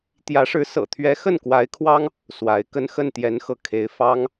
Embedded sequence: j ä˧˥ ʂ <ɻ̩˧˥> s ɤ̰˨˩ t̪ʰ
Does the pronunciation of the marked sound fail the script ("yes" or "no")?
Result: no